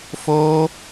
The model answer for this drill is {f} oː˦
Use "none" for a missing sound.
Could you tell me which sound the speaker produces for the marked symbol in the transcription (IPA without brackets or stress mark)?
f